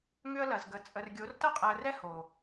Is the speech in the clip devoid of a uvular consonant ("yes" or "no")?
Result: no